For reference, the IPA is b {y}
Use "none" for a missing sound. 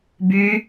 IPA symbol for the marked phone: y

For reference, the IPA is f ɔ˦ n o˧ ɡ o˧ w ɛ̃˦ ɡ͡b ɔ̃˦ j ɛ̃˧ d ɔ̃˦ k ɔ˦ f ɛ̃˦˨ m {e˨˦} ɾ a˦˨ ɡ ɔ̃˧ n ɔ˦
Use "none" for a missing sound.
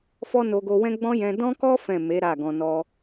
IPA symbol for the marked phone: e˨˦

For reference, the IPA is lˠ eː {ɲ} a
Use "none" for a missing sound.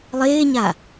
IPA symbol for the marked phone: ɲ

